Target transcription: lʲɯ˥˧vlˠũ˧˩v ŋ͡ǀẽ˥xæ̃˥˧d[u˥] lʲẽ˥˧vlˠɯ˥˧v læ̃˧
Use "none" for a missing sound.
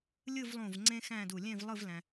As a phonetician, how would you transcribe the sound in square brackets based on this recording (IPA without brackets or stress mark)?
u˧˩